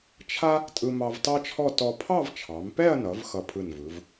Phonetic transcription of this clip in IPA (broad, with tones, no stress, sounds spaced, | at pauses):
t͡ʃʰ a˥ | tʼ ɯ˧ m ɑ˧ v t ɑ˥ t͡ʃʰ ɔ˥˧ t ɔ˧ pʰ ɑ˥˧ v t͡ʃʰ ɑ˩˧ m p ɛ˥˧ ɐ̯ n ʌ˩˧ v x ʌ˧˩ pʰ ɯ˧˩ n v ɯ˩˧ v